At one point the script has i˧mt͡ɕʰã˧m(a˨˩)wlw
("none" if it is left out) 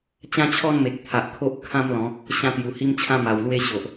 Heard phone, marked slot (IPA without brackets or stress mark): a˨˩